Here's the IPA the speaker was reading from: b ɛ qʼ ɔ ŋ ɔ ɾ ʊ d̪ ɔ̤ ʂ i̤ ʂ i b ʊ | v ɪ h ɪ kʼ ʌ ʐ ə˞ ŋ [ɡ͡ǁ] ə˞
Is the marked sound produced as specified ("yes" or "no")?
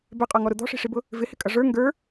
no